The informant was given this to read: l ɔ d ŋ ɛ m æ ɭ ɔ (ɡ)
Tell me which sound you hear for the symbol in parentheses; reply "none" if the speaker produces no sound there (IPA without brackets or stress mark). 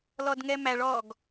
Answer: ɡ